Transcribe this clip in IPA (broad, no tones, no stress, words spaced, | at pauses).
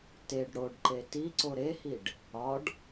teɖ ɽoɖǃe tiǀo ɾehiɖ | ɒɖ